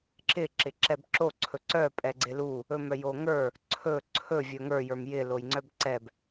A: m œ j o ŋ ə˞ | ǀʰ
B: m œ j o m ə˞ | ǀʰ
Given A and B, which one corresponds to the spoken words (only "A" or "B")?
A